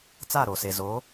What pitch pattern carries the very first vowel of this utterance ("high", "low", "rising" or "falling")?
falling